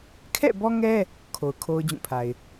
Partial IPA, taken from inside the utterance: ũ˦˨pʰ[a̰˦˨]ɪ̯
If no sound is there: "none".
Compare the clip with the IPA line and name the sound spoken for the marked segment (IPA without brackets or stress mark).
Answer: a˨